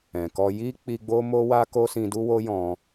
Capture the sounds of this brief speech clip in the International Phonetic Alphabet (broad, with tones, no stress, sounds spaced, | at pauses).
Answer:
ɛ̃˨ k ɔ˧ j i˦ k͡p i˧ ɡ͡b o˦ m o˦ w a˦ k o˦ s ĩ˧ d u˦ w o˦ j ɔ̃˧